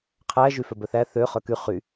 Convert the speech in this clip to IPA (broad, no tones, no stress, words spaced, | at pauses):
qʰæ ʒyfœbœθæ θø χœky χy